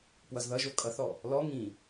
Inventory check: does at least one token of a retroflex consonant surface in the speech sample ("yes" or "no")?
no